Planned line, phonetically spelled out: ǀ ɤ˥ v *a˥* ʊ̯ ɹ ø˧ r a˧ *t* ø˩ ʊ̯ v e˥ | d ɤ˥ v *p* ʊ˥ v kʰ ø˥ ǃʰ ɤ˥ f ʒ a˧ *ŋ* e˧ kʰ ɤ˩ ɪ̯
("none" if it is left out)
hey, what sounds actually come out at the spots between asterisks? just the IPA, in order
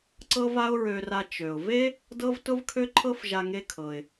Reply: a˥, t͡ʃ, t, ŋ

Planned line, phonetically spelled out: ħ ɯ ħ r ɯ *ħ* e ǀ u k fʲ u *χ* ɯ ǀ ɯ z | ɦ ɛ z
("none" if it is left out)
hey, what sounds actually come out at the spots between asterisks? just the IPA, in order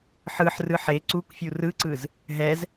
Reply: ħ, r

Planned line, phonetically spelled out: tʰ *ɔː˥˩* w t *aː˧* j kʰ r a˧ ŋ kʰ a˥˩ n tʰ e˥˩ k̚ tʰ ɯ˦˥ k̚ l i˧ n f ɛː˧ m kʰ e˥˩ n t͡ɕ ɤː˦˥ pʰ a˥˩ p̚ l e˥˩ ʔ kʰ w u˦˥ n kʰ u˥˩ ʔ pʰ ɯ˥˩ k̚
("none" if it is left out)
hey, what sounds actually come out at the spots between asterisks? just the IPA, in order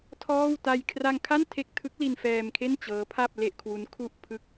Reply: ɔː˥˩, a˧

